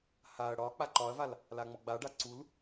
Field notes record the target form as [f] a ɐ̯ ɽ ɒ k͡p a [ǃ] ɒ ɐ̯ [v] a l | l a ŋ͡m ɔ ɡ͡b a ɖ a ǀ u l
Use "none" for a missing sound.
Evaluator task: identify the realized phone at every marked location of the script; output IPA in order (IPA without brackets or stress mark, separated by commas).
h, ǃ, v